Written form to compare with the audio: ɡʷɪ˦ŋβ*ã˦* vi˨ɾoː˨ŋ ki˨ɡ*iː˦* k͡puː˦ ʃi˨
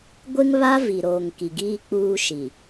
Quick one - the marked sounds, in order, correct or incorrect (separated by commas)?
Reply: incorrect, correct